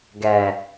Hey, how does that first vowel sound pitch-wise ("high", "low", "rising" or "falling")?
low